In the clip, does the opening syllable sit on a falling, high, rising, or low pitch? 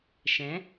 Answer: rising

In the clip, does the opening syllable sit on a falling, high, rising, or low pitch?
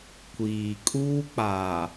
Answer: low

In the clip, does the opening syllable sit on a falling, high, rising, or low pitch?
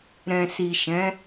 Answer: low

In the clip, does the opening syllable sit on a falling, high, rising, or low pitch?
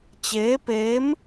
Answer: rising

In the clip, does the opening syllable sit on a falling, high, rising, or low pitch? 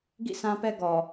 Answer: falling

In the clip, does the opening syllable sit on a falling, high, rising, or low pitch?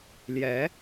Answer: rising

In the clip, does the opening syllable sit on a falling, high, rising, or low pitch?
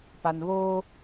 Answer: low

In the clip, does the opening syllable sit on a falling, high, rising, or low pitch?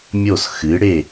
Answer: falling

